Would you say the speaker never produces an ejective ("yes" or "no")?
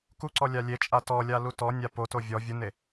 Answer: no